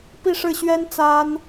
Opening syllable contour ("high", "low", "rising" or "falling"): falling